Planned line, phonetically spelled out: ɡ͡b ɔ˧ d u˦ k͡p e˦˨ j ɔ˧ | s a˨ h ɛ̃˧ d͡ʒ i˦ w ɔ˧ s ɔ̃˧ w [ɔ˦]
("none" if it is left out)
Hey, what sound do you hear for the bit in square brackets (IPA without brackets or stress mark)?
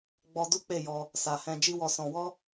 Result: ɔ˦